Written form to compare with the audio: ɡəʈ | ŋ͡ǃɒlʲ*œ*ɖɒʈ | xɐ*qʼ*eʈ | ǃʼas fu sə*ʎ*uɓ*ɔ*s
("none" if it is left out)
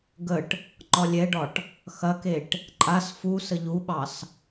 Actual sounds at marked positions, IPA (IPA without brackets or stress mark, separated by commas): ɛ, k, ʎ, ɑ